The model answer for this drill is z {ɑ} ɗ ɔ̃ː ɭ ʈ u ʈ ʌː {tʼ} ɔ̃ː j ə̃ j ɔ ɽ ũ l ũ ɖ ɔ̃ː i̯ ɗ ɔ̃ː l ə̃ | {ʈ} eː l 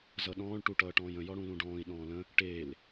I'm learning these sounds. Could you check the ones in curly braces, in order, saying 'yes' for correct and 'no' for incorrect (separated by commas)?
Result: no, no, yes